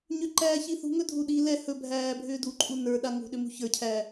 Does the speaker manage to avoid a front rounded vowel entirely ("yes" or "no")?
no